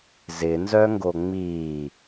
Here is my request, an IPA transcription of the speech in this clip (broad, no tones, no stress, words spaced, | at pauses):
zɪnzœŋɡo ŋ͡mi